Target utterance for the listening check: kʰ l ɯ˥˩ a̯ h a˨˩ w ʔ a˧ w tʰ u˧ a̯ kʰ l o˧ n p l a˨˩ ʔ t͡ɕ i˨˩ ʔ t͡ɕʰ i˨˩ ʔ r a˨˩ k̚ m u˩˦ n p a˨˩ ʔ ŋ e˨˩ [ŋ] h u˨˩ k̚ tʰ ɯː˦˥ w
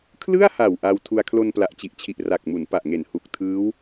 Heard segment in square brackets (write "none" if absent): n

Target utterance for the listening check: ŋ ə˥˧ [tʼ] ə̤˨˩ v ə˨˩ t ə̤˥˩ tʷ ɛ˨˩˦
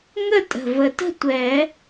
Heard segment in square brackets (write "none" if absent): tʼ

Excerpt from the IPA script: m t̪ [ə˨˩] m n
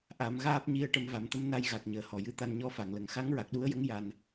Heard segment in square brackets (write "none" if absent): ə˧˥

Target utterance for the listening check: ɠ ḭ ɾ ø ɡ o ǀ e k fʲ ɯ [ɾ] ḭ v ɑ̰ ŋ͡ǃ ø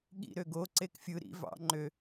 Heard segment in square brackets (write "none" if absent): ɾ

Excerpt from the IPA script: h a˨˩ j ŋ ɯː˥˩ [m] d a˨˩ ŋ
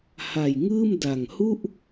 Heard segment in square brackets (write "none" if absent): m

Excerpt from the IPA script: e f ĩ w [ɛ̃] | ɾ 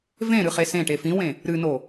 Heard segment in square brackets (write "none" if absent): ẽ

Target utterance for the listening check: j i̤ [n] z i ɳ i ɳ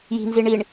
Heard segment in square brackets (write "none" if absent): n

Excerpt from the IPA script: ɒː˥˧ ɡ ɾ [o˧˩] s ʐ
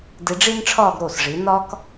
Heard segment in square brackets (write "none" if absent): o˧˩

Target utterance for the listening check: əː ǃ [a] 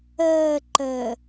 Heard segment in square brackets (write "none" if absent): ə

